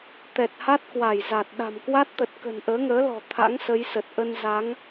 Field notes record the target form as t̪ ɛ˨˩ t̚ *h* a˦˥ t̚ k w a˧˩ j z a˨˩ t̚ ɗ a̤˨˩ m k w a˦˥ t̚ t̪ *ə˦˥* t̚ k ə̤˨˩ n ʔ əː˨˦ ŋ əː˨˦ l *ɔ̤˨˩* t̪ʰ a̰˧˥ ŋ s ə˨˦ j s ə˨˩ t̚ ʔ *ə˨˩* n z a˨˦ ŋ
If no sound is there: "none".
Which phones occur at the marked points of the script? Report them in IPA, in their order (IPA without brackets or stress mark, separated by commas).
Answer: h, ə˨˩, ɔ̤˨˩, ə˧